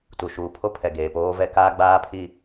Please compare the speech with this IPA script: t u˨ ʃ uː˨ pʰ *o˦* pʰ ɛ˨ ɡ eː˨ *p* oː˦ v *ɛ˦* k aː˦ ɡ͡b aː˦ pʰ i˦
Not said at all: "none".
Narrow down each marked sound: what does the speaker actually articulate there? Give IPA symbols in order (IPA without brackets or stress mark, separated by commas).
o˦, p, ɛ˦